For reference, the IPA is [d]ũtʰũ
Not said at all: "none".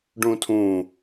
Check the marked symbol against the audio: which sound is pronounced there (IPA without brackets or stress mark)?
ɖ